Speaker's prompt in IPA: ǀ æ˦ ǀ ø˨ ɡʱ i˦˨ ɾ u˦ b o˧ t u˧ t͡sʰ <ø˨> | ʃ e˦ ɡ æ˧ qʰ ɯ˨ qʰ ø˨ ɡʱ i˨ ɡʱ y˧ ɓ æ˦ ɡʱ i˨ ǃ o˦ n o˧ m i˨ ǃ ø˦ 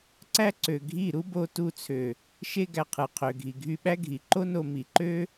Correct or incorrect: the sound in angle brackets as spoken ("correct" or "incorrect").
correct